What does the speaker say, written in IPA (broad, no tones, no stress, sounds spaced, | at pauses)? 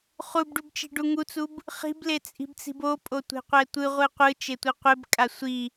χ u b ɖ u b t͡ʃ i̤ ɖ u ŋ u t͡s u b | χ i̤ b l e t͡sʼ i̤ b t͡s i̤ b o pʼ o tʷ e̤ qʷ ɛ tʷ ɯ ʁʷ ɯ qʷ ɯ t͡ʃ e tʷ ɯ qʷ e b kʼ a sʷ i